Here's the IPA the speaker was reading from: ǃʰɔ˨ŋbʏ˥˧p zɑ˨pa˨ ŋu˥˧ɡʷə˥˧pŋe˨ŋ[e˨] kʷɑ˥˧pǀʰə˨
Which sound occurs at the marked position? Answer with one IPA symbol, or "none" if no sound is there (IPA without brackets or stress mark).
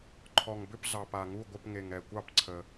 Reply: ɛ˨